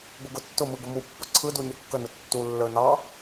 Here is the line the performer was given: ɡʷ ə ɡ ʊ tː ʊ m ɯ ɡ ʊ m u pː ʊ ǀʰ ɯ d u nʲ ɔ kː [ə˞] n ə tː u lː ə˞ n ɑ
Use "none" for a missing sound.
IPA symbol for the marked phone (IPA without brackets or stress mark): ə